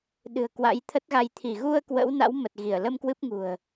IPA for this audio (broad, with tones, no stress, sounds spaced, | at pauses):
ɗ ɨ̤˨˩ ə̯ k w a̰˧˥ j t̪ʰ ə˦˥ t̚ ɣ a˧ j t̪ʰ i˧˩ ɣ u˧ ə̯ k w ə̰˧˥ w n a̰˧˥ w m ə˨˩ t̚ ɣ i˧˩ ə̯ l ə˧ m k w ɨ˦˥ p̚ ŋ ṳ˨˩ ə̯